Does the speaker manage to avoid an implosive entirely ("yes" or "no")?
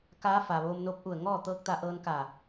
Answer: yes